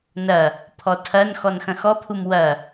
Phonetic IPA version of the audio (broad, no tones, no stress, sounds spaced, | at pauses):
n ɐ | pʰ ɔ tʰ ɐ n x ɔ n x ɐ̃ x ɔ pʰ u m w ɐ